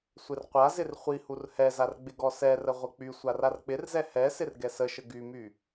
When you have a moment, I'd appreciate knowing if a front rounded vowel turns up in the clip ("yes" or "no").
yes